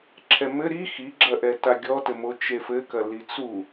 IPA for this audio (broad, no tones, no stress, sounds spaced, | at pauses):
ǁʰ ɛ m ɘ ɾ i x i ɡ͡ǁ ɐ ʔ ɛ t a ɡʲ ɔ t ɘ m o t͡ʃ e f ɘ k ɐ l i t͡s u